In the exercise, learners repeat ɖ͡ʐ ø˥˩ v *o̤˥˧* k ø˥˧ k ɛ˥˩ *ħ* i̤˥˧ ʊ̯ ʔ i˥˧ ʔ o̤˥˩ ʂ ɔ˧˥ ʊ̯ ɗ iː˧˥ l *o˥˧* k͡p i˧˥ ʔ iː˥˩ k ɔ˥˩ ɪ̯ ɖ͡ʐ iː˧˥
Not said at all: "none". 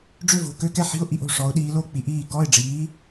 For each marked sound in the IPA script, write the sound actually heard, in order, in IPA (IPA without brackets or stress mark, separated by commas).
o̤˥˩, ħ, o˥˧